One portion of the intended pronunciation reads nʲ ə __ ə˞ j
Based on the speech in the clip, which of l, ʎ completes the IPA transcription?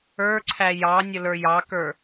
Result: l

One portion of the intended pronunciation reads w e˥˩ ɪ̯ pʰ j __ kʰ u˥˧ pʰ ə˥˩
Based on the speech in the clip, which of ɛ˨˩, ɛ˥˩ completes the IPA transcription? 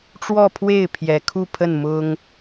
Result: ɛ˨˩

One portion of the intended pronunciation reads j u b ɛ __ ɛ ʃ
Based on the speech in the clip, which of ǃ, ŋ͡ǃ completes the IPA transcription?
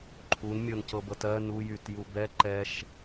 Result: ǃ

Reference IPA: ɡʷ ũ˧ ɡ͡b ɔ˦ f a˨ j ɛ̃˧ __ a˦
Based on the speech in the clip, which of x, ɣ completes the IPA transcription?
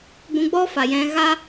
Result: ɣ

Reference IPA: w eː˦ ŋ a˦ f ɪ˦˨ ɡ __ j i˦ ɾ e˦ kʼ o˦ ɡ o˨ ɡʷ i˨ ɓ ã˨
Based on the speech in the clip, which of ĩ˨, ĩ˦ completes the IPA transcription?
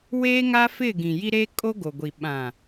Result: ĩ˨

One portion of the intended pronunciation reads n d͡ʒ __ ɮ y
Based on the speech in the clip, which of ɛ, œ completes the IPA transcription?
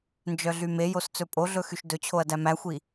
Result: œ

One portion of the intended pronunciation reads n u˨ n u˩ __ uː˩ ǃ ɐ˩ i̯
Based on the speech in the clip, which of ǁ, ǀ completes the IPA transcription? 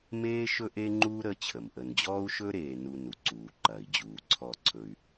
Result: ǀ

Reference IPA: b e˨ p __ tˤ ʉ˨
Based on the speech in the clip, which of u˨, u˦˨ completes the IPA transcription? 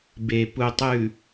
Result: u˨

